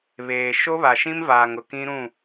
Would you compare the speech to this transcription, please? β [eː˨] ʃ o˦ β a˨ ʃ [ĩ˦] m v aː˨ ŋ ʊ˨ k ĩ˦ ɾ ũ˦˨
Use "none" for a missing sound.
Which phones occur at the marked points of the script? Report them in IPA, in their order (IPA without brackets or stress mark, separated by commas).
eː˨, ĩ˦